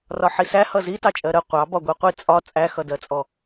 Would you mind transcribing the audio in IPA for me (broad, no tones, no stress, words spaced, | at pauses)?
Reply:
rɒħisæ hʌzitɑt͡ʃʼɜ ɾə qʷɑbɒ ɡʷiqʷi t͡sʼɒ t͡sʼæxʌdɜt͡sʼɔ